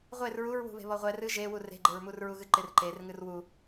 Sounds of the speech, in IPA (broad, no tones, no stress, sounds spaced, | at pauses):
ʁʷ e r ɹ u ɹ w ṳ β e̤ β ɔ ʁʷ ɛ r ɨ ʒ e w u r e̤ ɡ͡ǃ e ɹ m u r ɹ u ɣ ɨ ǃ ɪ r ǃ e r ŋ ɨ r w u